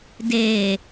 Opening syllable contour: low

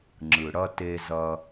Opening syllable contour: low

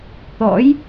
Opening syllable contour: rising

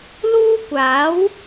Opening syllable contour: high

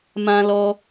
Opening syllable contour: high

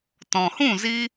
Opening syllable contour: low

